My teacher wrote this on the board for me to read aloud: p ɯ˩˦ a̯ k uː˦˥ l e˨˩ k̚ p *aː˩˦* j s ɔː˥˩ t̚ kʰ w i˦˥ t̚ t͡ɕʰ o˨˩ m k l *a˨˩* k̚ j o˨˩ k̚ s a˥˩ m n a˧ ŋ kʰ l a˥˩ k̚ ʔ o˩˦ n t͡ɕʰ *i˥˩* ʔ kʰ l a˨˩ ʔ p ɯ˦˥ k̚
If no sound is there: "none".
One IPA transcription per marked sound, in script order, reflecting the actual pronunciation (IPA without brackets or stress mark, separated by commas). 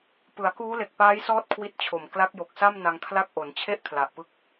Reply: aː˦˥, a˦˥, e˥˩